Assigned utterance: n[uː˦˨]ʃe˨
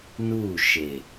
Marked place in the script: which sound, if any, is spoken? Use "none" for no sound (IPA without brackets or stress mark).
uː˦˨